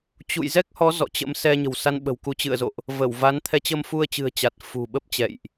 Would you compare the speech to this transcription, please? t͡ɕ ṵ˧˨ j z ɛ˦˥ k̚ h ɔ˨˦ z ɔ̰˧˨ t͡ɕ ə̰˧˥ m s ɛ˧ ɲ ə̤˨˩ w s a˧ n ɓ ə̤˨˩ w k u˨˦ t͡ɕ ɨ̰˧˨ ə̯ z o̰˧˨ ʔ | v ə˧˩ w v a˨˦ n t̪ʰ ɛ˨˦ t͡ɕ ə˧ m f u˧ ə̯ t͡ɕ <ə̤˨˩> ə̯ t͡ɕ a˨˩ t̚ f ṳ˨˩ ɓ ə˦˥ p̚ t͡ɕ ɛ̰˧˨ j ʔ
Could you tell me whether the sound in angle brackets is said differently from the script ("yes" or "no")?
yes